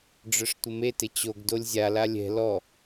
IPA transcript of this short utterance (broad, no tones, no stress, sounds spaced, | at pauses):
ɖ͡ʐ œ ʂ tʷ ɪ m e t ɪ t͡ɕ o ɡ d o lʲ zʲ a l a lʲ ɛ̤ l ɔ